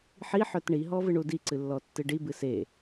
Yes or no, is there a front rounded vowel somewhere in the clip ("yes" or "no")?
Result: yes